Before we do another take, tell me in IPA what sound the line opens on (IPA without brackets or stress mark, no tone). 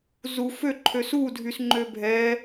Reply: z